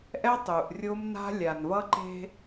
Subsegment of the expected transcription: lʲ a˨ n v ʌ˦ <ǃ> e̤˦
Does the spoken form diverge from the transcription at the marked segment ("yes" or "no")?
no